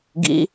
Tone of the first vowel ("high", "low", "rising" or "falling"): rising